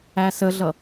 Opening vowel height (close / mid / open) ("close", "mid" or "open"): open